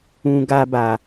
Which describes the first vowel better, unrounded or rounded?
rounded